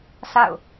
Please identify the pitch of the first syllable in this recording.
falling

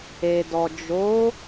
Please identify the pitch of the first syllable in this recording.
low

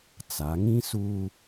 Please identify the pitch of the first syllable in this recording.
rising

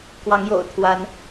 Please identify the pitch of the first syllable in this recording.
rising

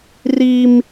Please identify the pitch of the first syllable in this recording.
high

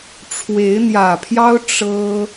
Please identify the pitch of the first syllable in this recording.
rising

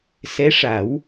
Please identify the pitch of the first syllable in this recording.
rising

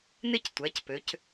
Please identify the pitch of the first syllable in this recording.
falling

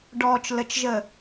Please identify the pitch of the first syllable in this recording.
low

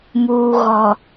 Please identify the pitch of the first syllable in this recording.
low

